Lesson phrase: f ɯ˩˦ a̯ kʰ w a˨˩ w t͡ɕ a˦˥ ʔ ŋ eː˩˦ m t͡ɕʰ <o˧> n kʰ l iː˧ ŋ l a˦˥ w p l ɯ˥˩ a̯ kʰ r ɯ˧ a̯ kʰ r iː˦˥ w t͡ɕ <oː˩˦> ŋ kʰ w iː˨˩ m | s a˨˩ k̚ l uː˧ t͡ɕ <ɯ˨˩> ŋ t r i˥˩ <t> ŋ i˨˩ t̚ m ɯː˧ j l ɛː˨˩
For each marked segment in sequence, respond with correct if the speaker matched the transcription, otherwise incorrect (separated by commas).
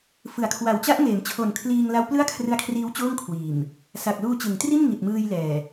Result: incorrect, incorrect, incorrect, incorrect